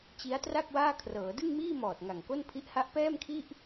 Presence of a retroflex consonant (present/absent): absent